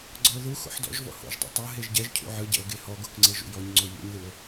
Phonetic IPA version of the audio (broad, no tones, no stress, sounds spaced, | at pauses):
ɡ͡ǀ ɔ o̯ ð u x o̰ ħ d ɔ̰ ʒ v ɔ̰ h o̰ ʒ dˤ ṵ tˤ ɤ ɦ e ʒ ɟ ɛ ʒ cʰ ṵ ʕ ɯ ɟ ɛ̰ o̯ ɡ e h ɔ ɡ o k ŋ͡ǀ e ʒ ṵ j ɔ ɲ ŋ͡ǀ o ʎ ṵ ɲ ð u o̯